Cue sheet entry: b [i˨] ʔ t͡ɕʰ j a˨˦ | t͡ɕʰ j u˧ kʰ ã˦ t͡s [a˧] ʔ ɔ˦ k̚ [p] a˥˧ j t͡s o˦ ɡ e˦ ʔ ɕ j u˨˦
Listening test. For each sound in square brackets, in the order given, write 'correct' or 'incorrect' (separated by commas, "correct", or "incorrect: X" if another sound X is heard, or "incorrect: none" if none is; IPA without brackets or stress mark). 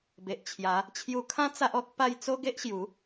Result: incorrect: e˨, incorrect: a˦, correct